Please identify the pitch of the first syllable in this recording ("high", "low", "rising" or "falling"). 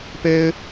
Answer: high